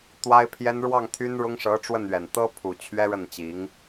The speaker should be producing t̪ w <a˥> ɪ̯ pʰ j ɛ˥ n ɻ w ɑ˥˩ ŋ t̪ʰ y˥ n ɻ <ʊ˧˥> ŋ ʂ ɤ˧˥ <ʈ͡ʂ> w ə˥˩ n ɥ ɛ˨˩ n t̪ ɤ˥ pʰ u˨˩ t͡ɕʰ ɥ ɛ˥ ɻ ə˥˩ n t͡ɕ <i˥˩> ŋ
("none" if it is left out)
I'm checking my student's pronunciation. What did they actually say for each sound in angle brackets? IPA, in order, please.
a˥, ʊ˥, ʈ͡ʂ, i˧˥

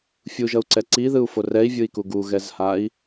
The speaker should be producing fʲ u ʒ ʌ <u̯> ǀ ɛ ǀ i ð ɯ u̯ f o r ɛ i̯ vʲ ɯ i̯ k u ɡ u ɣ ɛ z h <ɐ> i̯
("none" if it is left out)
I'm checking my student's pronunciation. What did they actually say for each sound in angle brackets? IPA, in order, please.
u̯, a

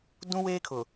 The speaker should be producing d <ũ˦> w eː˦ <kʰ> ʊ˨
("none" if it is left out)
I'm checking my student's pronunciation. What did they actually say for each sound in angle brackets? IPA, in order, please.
ũ˦, kʰ

